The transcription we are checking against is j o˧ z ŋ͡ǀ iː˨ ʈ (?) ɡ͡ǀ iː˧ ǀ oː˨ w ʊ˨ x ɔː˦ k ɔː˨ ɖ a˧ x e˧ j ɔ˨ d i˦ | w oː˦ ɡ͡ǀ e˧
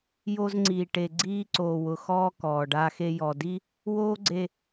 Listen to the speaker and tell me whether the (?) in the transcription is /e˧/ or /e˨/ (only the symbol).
e˨